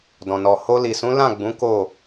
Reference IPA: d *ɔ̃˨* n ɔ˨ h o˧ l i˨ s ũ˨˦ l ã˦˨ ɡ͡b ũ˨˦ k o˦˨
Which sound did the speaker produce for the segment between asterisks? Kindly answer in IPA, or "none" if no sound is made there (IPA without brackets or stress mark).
ɔ̃˨